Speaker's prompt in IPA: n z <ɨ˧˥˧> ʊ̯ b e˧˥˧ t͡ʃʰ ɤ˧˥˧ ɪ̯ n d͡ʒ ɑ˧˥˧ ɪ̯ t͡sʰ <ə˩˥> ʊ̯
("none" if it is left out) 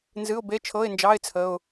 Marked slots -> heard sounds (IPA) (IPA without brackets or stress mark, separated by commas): ɨ˧˥˧, ə˧˥˧